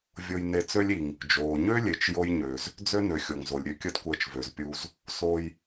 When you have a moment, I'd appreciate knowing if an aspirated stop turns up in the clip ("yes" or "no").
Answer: no